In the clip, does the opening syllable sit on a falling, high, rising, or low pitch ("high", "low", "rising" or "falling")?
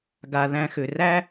low